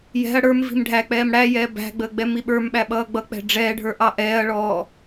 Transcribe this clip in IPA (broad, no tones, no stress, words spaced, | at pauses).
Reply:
jɛ̤ɐ̯ ɽə˞mvi̤m ɖʱæk͡pɛːm ɽæjɛː bæ̤ɡ͡bəː ɡ͡bɛmiɓə˞mɓæ ɓʌːɡ͡bʌk͡pɛ̤ ɖ͡ʐɛːɖʱə˞ ʔɑʔɛːɐ̯ɭɔː